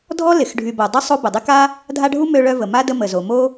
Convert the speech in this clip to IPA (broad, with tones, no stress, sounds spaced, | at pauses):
dʱ ɔ˥ l ɪ˩ x ɖʱ y˨ b o˩ dˤ ʏ˥ sˤ o˥ b ʊ˩ dˤ ɪ˥ k a˥ | dʱ a˦ ɖʱ u˥ m ø˦ ɭ œ˦ v ə˩ m a˦ d ə˦ m ə˩ z o˩ m o˥